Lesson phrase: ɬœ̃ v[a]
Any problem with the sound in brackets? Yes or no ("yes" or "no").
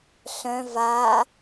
no